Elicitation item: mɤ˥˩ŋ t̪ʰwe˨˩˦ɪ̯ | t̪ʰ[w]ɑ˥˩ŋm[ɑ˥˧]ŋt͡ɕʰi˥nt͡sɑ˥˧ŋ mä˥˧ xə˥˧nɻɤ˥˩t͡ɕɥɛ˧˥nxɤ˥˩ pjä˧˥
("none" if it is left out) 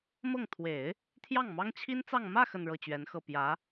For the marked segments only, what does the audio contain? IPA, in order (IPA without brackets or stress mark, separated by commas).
j, ɑ˥